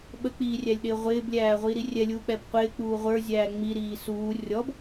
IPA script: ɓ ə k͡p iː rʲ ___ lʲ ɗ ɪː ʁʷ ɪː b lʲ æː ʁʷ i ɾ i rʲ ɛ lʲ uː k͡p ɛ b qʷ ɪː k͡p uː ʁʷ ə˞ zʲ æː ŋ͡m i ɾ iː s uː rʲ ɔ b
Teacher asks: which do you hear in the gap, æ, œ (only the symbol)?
æ